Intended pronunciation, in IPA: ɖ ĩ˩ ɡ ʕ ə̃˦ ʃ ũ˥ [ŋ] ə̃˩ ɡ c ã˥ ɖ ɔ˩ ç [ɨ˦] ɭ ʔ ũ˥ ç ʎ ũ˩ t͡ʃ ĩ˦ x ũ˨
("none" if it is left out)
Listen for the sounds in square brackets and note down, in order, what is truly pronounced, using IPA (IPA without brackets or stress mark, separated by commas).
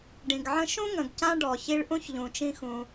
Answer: ŋ, i˦